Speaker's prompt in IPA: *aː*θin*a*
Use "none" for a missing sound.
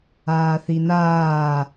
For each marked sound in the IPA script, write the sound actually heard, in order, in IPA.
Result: aː, aː

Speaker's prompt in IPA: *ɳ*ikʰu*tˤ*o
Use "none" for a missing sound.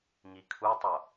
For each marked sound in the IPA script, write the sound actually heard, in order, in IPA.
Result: ŋ, tˤ

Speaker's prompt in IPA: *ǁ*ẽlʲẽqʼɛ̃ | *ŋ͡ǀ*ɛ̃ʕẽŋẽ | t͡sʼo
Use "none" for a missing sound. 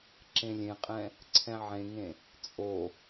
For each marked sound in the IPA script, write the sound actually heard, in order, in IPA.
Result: ǁ, ǀʰ

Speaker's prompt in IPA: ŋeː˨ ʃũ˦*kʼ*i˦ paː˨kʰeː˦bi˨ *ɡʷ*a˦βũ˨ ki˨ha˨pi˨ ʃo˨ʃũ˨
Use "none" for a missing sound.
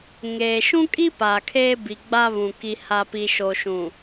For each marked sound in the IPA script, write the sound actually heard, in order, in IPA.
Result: kʼ, ɡ͡b

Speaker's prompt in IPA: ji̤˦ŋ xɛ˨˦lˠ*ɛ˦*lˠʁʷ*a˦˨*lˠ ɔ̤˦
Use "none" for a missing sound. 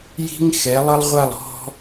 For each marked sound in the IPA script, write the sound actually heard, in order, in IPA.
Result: ə˦, a˦˨

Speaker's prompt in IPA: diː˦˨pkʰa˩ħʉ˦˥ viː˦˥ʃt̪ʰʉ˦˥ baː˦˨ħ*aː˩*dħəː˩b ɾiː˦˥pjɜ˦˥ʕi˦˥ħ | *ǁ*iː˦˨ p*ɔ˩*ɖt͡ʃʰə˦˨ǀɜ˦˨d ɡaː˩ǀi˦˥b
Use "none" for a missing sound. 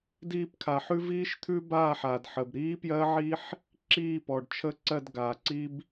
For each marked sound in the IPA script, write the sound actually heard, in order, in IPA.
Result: aː˩, ǁ, ɔ˩

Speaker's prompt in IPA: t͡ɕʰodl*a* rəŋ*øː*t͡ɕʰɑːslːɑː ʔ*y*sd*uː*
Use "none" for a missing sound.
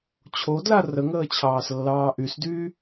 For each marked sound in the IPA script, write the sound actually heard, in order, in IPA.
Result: a, əː, y, yː

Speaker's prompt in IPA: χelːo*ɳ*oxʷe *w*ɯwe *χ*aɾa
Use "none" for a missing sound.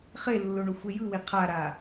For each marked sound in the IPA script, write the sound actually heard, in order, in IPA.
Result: ɳ, j, qʰ

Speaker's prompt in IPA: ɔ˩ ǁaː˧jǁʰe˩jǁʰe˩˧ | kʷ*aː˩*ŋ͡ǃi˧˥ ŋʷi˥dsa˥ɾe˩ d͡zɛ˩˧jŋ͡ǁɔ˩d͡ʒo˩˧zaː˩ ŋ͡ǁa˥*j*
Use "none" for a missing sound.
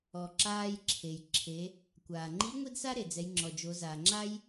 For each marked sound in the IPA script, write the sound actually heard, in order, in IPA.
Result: aː˩, j

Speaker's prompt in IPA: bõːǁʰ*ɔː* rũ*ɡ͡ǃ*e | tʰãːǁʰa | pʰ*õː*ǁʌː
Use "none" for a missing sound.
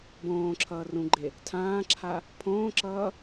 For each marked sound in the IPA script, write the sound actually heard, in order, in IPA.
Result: ʌː, ɡ͡ǃ, õː

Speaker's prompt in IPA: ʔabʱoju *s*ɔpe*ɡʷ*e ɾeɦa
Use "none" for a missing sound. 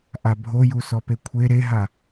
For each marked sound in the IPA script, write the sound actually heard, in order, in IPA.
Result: s, kʷʰ

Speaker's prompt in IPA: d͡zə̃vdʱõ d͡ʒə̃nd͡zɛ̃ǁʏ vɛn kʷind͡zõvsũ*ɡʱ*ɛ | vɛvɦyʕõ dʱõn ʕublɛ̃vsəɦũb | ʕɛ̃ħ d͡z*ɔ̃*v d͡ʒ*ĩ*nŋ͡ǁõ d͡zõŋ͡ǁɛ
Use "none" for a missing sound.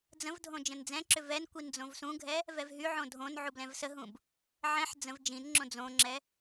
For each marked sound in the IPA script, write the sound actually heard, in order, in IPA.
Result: ɡʱ, ə̃, ĩ

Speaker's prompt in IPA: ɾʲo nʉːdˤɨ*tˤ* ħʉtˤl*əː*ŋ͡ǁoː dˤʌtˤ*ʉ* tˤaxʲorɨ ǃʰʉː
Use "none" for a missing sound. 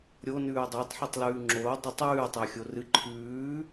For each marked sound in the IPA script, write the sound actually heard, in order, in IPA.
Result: tˤ, ʉː, ʉː

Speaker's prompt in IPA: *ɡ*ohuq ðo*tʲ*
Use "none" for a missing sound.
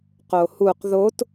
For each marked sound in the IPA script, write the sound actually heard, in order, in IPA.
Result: q, t

